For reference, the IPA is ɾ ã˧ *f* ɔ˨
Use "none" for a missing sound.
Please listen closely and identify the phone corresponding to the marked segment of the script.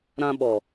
ɓ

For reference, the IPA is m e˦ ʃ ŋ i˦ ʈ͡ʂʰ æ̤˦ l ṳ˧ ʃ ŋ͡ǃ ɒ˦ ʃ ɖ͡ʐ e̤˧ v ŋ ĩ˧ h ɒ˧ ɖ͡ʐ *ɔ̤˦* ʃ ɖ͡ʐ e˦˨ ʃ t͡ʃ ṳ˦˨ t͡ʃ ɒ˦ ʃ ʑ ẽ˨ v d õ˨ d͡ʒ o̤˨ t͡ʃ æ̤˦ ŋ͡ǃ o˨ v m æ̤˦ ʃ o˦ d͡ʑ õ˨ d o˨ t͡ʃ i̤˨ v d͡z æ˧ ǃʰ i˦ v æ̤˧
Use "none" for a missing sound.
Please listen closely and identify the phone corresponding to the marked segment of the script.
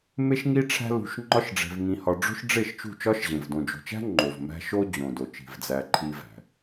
o̤˦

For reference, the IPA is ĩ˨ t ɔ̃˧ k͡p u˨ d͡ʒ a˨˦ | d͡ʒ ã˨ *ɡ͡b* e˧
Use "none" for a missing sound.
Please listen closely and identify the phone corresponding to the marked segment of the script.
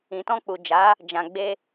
ɡ͡b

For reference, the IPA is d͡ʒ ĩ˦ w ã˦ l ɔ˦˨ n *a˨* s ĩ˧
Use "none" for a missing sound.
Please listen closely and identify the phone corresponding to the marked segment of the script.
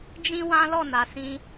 a˨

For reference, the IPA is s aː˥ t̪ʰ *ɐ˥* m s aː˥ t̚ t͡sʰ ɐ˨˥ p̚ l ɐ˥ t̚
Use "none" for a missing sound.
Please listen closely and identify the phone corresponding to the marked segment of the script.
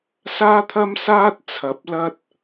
ɐ˥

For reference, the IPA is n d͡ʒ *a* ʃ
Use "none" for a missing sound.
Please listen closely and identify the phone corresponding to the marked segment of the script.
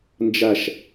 a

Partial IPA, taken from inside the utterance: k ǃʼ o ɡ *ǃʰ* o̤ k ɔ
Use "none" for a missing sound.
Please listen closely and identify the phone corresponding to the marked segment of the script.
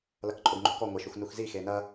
ŋ͡ǃ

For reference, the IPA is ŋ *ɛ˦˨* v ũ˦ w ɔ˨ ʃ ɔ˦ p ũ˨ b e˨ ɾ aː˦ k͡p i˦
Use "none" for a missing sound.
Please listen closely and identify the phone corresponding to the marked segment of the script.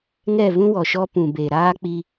ɛ˦˨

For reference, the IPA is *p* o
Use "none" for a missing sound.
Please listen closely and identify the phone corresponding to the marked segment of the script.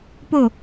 p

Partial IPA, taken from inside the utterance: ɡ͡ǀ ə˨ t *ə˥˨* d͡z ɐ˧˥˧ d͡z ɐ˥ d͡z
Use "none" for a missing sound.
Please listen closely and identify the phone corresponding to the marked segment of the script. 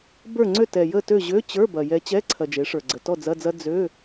ɔ˥˨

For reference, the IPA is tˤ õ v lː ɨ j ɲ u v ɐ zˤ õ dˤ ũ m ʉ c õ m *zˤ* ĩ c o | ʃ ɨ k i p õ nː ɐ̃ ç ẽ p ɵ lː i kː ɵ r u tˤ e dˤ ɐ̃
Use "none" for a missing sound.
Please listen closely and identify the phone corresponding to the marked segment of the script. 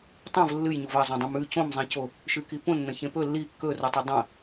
zˤ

